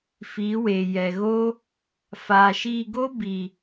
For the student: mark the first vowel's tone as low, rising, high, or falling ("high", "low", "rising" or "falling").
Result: rising